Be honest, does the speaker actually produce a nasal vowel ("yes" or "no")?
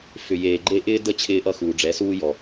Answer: no